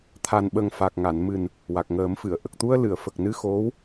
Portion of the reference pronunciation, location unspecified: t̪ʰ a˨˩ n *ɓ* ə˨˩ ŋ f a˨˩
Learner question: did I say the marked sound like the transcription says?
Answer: yes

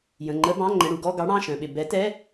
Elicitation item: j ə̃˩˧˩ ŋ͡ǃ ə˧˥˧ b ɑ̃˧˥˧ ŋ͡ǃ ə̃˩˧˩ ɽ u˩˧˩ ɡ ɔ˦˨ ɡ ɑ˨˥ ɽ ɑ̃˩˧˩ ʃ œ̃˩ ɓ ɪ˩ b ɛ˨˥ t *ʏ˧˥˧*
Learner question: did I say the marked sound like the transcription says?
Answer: no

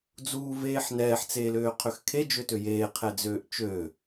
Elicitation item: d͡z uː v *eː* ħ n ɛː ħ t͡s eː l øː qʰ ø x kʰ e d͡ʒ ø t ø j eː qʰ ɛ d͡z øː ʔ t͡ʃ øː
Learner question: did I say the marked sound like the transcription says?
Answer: yes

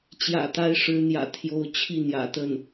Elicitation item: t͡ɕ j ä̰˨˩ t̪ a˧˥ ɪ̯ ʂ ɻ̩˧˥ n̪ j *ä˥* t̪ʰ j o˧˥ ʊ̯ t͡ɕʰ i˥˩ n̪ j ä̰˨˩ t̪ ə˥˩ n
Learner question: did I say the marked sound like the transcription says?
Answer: no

